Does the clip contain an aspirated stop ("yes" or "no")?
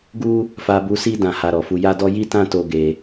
no